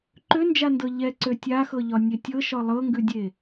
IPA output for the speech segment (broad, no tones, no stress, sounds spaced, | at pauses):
ǃ ø n d͡ʒ a n d ɤ ʎ ɛ ǀ ø tʲ a x ɤ ʎ ɒ nʲ e tʲ ɤ ʃ ɒ lˠ ɤ ŋ ɡ ʉ dʲ e